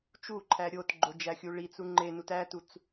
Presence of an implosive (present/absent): absent